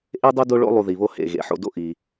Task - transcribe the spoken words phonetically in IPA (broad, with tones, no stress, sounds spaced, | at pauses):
ʔ e˥ dˤ o˥ d o˦ ɭ o̰˦ lˠ u˨ ð i˩ β o˦ h ḛ˩ ɣ ḛ˩ ħ o̰˨ d o̰˦ ʔ i˩